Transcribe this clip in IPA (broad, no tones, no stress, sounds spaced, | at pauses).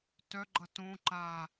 t œ ɡ͡ǃ ʌ t õ ǃ a